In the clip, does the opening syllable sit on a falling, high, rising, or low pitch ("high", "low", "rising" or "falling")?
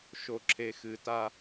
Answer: low